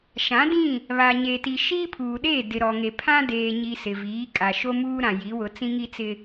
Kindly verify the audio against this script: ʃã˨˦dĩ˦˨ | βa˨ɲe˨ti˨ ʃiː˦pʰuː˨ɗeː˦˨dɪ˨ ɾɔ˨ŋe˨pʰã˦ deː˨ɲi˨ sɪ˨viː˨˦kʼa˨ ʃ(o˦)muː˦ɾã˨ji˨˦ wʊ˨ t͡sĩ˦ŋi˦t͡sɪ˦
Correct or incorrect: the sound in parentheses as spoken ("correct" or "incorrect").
correct